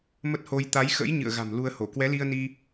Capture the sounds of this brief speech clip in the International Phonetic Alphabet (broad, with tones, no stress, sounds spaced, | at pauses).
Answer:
m ə˦˥ t̚ h o˧ j t̪ a˨˦ j x ə̰˧˥ j ɲ ɨ̰˧˨ ə̯ ɣ a̤˨˩ m l u˧ ə̯ h o˧˩ k w ɛ˨˦ l i˧ ə̯ n i˧